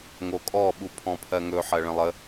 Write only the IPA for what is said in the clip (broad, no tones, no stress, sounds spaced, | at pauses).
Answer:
ŋ o kʼ ɔ ɓ u pʰ ɔ̃ pʰ ɜ ŋ ɵ ħ ɜ ɭ ə̃ lˠ ə